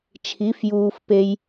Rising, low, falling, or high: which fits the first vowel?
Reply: rising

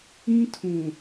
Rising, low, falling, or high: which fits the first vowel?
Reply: high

